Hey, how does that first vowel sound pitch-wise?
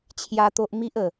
high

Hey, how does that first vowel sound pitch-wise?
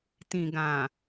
low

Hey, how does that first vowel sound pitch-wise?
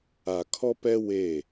low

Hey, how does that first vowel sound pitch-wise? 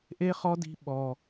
high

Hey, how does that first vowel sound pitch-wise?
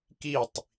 falling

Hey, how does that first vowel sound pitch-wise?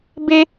high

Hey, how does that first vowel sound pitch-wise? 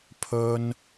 high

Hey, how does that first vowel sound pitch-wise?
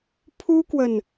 high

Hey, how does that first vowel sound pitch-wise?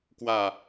low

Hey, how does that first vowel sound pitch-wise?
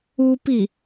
high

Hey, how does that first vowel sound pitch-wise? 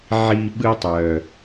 low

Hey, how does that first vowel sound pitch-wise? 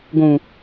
low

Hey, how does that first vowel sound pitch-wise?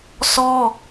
high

